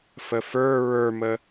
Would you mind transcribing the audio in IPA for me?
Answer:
f ə f ə˞ ɹ ə˞ m ə

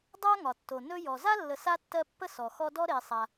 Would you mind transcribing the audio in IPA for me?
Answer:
dˤ a˥ ŋ ɒ˩ tː o˩ n ɵ˥ j ɔ˨ z a˥ lː ə˨ s a˥ tː ɜ˦ pː ə˥ s ɔ˩ x ɔ˦ d ɔ˥ ɾ e˨ sˤ a˨

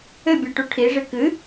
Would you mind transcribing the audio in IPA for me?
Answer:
ɘ bʲ a ʈ u ʈʰ i ʐ ɨ k ɨ

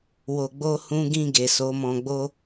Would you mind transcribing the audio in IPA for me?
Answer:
w o˧ ɡ͡b o˦ h ũ˦ ɡ ĩ˧ ɡ e˨ s o˨˦ m ɔ̃˧ ɡ͡b o˦

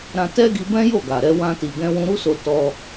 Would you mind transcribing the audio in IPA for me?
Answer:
ɾ ã˧ t ɛ˦ ɡ i˧ b ɛ̃˦ j o˦˨ ɡ a˨ ɾ ɛ˧ w ã˧ t i˨ ɡ ɛ̃˧ w ũ˧ ɾ u˦ s o˧ t ɔ˧

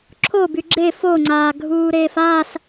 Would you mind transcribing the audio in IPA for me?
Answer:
ǁʰ o b y ɡ͡ǁ e f o ŋ͡ǀ aː ɡʱ uː ɾ eː f a s

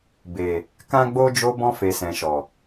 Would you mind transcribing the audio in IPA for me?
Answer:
b e˨ | k ã˦ ɡ͡b o˦ d͡ʒ o˧ b ɔ̃˧ f e˨ s ɛ̃˨ ʃ ɔ˨

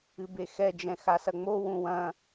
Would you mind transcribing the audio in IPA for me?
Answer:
ɨ b e x ɛ d͡ʒ ɛ̃ x a s ɐ ŋ͡m o w ũ w ɐ̃

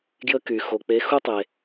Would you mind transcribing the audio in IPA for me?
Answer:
ɡ j ə˦ k y˨ x o˨ k͡p e˨˦ x u˦ tˤ e˧

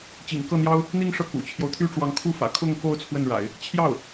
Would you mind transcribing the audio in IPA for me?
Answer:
t͡ɕ ḭ˨˩ ŋ k ɤ˥˩ n̪ j ɑ˥ ʊ̯ | n̪ i˥˧ ŋ ʂ ɤ˥˩ k ṵ˨˩ t͡ɕʰ j o˦ ʊ̯ t̪ʰ y˥ ʈ͡ʂ w ɑ˧˥ ŋ kʰ u˥˩ f ä̰˨˩ kʰ ʊ˥˧ ŋ k o˥˧ ʊ̯ t͡sʰ w ə˥˩ n ɻ a̰˨˩˦ ɪ̯ | t͡ɕʰ j ɑ˥˩ ʊ̯

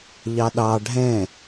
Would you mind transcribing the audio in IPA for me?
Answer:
ʎ ɑ ɗ ɑ ɖʱ ɛ̃

